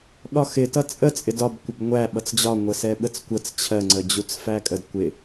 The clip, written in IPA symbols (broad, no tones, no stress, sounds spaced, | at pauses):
ɠ ɒ x ɪ t ʌ t͡sʼ ə t͡sʼ ɪ d ɒ b kʷ ɪ b ŋʷ æ ɓ ʌ t͡s d͡ʑ ɒ ŋʷ ə s ɛ ɓ ə t͡s kʷ ə t͡s t͡ɕʰ ɜ ŋ͡ǀ ə d͡ʑ u t͡s f æ kʼ ə d kʷ ɪ